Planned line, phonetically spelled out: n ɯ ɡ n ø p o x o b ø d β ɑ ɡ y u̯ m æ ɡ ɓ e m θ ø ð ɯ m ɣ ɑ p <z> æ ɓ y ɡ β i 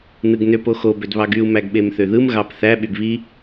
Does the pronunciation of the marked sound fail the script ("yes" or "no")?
yes